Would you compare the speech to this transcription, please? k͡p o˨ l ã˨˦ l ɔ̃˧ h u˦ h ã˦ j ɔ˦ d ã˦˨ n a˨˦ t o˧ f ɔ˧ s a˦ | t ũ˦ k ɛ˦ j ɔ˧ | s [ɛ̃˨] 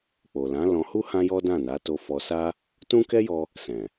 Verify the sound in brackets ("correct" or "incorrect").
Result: correct